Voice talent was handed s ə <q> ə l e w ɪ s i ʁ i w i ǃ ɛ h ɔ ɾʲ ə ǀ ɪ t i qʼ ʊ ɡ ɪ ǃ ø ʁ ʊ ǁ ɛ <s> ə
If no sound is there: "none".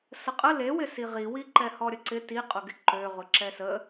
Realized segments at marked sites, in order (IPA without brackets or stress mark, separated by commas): qʼ, s